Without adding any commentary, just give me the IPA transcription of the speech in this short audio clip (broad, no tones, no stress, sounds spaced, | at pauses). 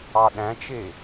ɑ ɗ æ̃ t͡ʃ e